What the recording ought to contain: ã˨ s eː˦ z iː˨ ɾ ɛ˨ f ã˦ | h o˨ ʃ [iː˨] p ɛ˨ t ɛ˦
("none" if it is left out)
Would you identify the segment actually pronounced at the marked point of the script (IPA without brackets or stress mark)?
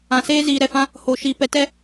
iː˨